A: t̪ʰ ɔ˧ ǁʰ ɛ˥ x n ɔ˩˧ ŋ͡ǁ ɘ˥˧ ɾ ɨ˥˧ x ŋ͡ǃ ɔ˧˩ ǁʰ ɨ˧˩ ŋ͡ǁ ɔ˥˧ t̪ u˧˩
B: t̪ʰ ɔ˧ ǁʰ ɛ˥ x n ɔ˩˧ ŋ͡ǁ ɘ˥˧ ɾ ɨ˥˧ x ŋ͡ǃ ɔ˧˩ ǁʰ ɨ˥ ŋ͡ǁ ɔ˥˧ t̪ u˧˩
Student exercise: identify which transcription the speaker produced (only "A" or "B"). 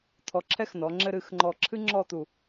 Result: B